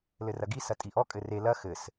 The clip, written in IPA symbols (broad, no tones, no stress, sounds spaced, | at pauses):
l ɘ r ɐ ɡ i s ɐ tʼ i ʔ ɔ kʼ ɘ r e l ɐ x ɘ s